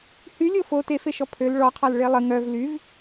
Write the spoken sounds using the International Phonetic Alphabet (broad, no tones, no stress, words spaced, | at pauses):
hylʲo fo tefeʃɔ pʰøl ɭɔqʰal ɭelˠə ŋœv lyv